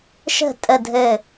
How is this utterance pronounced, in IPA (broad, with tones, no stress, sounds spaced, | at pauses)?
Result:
ʃ ə̤˥˨ tʼ ə˥˨ dʱ ɘ˥˨